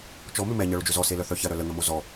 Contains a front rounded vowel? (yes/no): yes